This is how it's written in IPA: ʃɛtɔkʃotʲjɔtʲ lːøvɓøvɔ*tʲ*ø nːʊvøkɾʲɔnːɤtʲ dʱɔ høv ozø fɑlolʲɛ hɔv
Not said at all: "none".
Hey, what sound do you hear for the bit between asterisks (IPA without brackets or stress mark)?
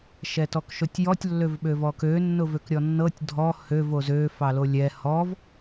k